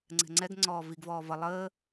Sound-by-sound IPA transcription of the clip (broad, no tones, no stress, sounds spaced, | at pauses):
ŋ͡ǀ ɛ̤ ŋ͡ǀ ɛ ɡ ŋ͡ǀ ɔː v i ɡ v ɔː v ʌ lˠ əː